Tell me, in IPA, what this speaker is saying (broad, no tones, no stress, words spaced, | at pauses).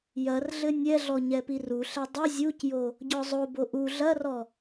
jɐrɮɘ nʲɛɮɔ ɲɛpiruɬɛ dˤɘ zʲucjo | ɟɔzˤobo ʔu ɮɐrɔ